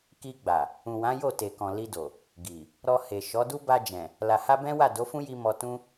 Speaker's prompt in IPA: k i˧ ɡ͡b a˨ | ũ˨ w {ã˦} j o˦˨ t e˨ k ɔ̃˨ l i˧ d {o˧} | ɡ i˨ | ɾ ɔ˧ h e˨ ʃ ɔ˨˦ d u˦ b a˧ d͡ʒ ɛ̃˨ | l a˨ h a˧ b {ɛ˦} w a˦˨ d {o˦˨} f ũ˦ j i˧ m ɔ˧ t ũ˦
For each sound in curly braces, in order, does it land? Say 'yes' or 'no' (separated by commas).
no, no, no, no